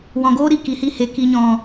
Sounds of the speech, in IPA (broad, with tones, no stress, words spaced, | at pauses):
wɔ̃˨ɡoː˦ ɾi˧ki˨hi˧he˨ ki˨ɲɔ̃˨